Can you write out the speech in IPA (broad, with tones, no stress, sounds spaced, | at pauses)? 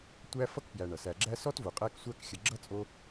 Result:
tʷ æ˦ f ʌ˥ k p j æ˨ ɳ ʌ˩ s æ˨ ɡ͡ǁ æ˥ s ɔ˥ t v o˩ qʼ æ˥ k sʷ æ˥ k xʲ ə˨ ɡ͡ǁ ʌ˥ t͡sʼ o˦